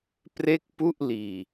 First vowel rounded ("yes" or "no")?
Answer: no